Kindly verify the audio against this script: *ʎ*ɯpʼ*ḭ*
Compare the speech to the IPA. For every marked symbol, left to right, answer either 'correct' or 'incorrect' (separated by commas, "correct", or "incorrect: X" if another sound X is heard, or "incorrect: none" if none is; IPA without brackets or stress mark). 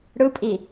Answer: incorrect: ɽ, incorrect: i